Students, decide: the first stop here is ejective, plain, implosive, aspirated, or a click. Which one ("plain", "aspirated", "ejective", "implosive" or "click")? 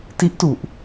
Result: plain